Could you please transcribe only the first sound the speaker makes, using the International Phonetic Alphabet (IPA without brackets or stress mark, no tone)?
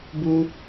b